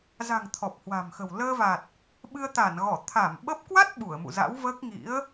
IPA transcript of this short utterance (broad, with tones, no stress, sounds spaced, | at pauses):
z a̤˨˩ ŋ t̪ʰ ɔ˨˩ p̚ h w a̤˨˩ m x ə̤˨˩ w l əː˧ v a˨˩ t̚ | ɓ ɨ˧ ə̯ t̪ a˧˩ n ɣ ɔ˧˩ t̪ʰ a˧˩ m ɓ ə˦˥ p̚ k w a˦˥ t̚ ɓ u˧˩ ə̯ m ṵ˧˨ z a̰˧˥ w v əː˦˥ k̚ ŋ ḭ˧˥ ə̯